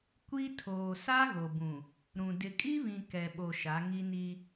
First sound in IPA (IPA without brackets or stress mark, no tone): kʷ